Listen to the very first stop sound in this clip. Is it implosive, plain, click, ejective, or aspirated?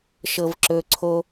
click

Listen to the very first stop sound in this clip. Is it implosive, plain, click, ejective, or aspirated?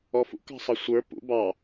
plain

